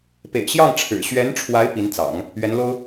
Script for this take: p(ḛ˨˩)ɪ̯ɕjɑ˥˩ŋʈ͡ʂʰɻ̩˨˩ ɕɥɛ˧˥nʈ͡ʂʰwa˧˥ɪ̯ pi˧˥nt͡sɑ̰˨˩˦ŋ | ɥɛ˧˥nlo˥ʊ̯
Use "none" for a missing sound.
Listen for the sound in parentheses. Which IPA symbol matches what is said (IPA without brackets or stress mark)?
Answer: ḛ˨˩